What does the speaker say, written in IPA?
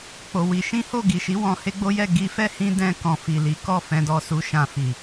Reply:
k͡p o˧ w i˧ ʃ ĩ˦ h o˦˨ ɡ i˨ ʃ i˨˦ w ɔ̃˧ h e˦ ɡ͡b o˦ j ɛ˦˨ ɡ i˧ f ɛ˦ h ĩ˧ d ɛ̃˧ k ɔ̃˨ f i˨ l i˨˦ k ɔ˦˨ f ɛ̃˧ d ɔ˧ s u˧ ʃ ã˧ f i˨

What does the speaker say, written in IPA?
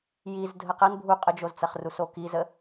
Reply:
j i z dʱ ə q ɐ n bʱ u qʼ ə d͡ʒ o z t͡s ɐ χ r u s o k i z ə

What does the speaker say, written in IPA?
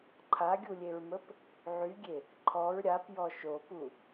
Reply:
ǃʰ a ɡʲ u lʲ e ɹ m ə p | ʕ y ɡʲ e | ǃʰ ɔ ɹ ɾʲ a p j ɔ ʃ o p u

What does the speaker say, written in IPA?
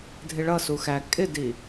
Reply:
dʱ ɪ ɭ ʌ s u x æ kʼ ɪ d i

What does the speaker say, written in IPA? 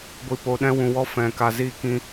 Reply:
ɡʷ i˨ p o˨ ɗ ɛ̃˧ w ũ˨ w ɔ˧ f ɛ̃˨ k a˨ z iː˧ k ĩ˧

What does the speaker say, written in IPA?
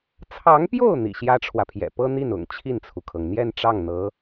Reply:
t͡sʰ ɑ˧˥ ŋ p j o˥˩ ʊ̯ n̪ ḭ˨˩ ɕ j ä˥ ʈ͡ʂʰ w ä˨ pʰ j ɛ̰˨˩ p ɤ˥ n̪ i˥˩ n ʊ̰˨˩ ŋ t͡ɕʰ i˥˩ n t͡sʰ u˩ kʰ ɤ˩ ŋ n̪ j ɛ˥˧ n ʈ͡ʂ ɑ˥˩ ŋ n̪ ɤ˧˥

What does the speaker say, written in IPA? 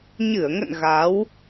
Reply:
ɲ ɨ˧˩ ə̯ ŋ ə̰˧˨ n ɣ a˨˦ w

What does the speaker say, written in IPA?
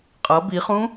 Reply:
qʼ ʌ b i χ ũ

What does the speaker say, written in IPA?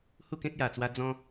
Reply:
h u˥˧ k ẽ˦ k̚ j a˨˩ t͡s w a˧ d͡z ɔ̃˦

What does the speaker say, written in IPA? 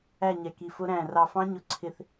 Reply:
æ˥˧ ɲ ɛ˧ k i˧ f ʊ˦˥ ɾ æ̃˥˧ r ɑ˧ f ɑ̃˦˥ ɲ ʊ˧ ǀʰ ɪ˧ θ

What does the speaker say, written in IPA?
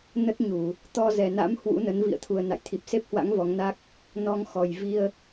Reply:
n ə˦˥ t̚ ɲ u˧˩˨ | t̪ ɔ˧ z ɛ˨˩ n a̰˧˥ m h w ṵ˧˥ n ə˨˦ n v ḭ˧˨ ə̯ t̪ʰ u˨˩ ə̯ n a̰˧˨ j t̪ʰ i˨˩ p̚ s e˦˥ p̚ h w a̰˧˥ ŋ v ɔ˨˦ ŋ n a˦˥ k̚ | n ɔ˧ ŋ x ɔ˨˩ j v i˧ ə̯

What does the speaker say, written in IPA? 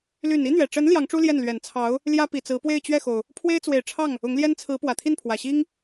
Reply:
l y˨˩ n i˥ n̪ ɥ ɛ˨˩ ʈ͡ʂ ə˧˥ n l j ɑ˧˥ ŋ ʈ͡ʂ u˥ l j ɛ˥˩ n l ɥ ɛ˨˩ n t͡sʰ ɑ˧˥ ʊ̯ | l j ä˥ p i˨˩ t͡s ɹ̩˧˥ p w e˥˧ ɪ̯ t͡ɕ ɥ ɛ˥˩ x o˩ ʊ̯ | pʰ w e˥ ɪ̯ t͡s w e˨˩ ɪ̯ ʈ͡ʂʰ ɑ˥˩ ŋ | ʊ˧˥ ŋ l j ɛ˥ n t͡sʰ ɹ̩˧˥ p w ä˨˩ t̪ʰ i˥˩ n pʰ w ä˨˩ ɕ i˥ ŋ

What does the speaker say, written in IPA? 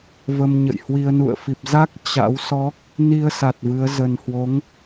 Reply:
v ə˧ m ɲ ə̰˧˨ j h w i˧ ə̯ n ṵ˧˨ ə̯ f i˨˩ p̚ z a˦˥ k̚ t͡ɕ a̰˧˥ w s ɔ˦˥ k̚ | n i˧ ə̯ s a˨˩ t̚ v ɨ˨˦ ə̯ z ə˨˩ n h w o˨˦ ŋ

